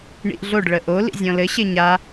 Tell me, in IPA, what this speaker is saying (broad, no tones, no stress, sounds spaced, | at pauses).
ɳ ḭ ʔ ɮ o ɖ ɭ ə ʔ o l ḭ zʲ ɔ̃ l ɘ ɕ e ɲ a